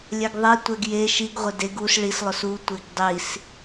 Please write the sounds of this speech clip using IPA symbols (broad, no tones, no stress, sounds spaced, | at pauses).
lʲ ɛ ɡ ðˤ e tʷ ɛ ɡ j e ʃ i ɡ ʁʷ ɪ d e ɡ u s ɭ i s lˠ ʊ s u tʷ e ɡ dˤ i s